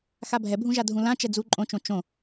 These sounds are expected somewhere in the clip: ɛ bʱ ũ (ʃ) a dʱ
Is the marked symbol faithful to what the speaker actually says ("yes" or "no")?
no